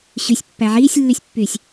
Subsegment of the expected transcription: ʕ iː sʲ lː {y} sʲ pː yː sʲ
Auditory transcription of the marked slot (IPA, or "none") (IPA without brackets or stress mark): y